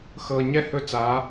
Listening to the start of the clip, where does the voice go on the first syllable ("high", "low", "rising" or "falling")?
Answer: low